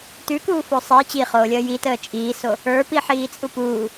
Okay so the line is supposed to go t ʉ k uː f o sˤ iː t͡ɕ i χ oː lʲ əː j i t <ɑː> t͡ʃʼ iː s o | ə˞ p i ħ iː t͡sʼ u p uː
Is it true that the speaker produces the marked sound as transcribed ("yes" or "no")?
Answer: no